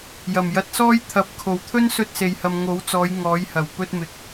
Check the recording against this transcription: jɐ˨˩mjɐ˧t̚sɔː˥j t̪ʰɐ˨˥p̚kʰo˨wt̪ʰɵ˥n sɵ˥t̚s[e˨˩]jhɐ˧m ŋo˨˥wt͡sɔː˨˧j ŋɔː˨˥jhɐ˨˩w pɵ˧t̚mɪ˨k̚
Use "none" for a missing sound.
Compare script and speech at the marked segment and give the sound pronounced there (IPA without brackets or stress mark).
e˧